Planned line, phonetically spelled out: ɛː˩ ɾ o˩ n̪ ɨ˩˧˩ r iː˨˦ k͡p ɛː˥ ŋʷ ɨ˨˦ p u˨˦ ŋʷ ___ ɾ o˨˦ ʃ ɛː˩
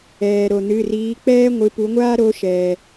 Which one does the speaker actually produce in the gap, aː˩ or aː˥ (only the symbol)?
aː˥